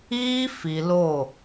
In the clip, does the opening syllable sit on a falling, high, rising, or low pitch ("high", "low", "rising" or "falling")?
high